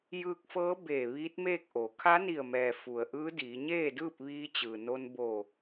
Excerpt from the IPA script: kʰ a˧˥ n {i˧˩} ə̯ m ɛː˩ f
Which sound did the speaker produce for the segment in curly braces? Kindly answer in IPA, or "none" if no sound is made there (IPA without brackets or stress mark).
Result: i˧˩